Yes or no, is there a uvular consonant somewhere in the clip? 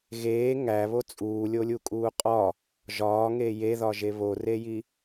yes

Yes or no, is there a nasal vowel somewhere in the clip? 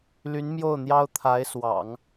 no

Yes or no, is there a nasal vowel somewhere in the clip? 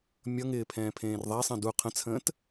yes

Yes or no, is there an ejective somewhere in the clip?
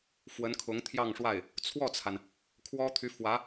no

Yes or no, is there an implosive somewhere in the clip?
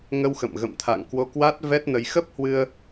no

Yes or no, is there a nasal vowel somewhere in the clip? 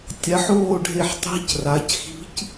no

